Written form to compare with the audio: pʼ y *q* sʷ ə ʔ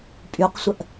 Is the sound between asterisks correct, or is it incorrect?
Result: correct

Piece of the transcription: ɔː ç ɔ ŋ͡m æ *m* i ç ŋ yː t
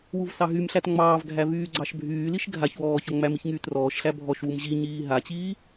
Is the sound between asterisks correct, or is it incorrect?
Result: correct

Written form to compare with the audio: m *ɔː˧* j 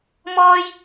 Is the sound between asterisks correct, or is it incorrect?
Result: correct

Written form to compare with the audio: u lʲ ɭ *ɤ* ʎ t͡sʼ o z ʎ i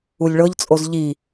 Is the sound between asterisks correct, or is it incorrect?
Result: correct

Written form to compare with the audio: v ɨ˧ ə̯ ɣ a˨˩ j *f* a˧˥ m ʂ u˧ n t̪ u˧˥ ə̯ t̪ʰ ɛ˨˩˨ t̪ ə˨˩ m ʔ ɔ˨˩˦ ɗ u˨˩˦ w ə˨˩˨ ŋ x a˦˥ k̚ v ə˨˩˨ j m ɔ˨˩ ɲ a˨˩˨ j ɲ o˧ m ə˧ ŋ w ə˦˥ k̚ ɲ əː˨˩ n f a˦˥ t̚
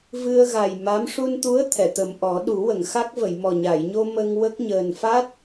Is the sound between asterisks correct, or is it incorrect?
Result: incorrect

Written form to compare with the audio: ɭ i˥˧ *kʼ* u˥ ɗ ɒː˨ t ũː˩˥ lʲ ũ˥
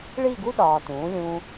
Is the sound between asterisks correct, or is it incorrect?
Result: incorrect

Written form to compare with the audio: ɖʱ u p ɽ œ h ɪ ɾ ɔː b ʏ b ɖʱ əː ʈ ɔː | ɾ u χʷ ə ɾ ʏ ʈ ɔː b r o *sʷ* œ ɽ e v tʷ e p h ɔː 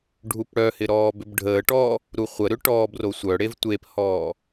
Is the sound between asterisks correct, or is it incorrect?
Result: correct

